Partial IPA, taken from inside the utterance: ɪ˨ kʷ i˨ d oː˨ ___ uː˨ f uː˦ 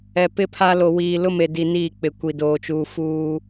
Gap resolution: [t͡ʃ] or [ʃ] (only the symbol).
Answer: t͡ʃ